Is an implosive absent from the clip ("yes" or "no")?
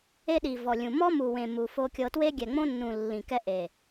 no